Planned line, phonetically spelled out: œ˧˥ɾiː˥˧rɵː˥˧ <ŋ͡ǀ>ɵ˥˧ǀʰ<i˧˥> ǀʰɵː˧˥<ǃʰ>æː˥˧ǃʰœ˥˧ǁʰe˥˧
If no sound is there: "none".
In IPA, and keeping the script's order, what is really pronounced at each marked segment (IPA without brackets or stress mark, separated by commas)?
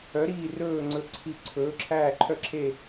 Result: ŋ͡ǀ, i˥˧, ǁʰ